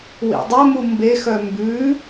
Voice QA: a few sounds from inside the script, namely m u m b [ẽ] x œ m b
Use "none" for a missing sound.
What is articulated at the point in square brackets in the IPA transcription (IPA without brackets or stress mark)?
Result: e